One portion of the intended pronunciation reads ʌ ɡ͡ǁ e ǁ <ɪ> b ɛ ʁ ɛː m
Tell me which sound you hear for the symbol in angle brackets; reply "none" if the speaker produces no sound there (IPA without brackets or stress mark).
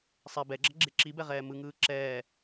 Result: i